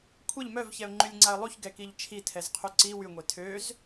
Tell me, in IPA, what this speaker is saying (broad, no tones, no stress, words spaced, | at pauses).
kʷʰɛʎ mœvçɛʊ̯ŋ͡ǃylʲŋ͡ǀaə̯ lˠuçɡɛkiʎ t͡ʃʰitʰɛzqʰy ǀi wyŋʷe tʰøz